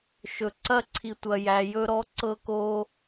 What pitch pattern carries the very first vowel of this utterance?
low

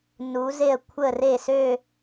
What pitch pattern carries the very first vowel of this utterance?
rising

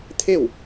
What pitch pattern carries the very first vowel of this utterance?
falling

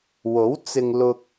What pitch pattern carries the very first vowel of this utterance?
rising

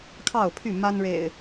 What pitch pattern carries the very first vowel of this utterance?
falling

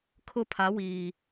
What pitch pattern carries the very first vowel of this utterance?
high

